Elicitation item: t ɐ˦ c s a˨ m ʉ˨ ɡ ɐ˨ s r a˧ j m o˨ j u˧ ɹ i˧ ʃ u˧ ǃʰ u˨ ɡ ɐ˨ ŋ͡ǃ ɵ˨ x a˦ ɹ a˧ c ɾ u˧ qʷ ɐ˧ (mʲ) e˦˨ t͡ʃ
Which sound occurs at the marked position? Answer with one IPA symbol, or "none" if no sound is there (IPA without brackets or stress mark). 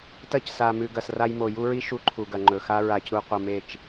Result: m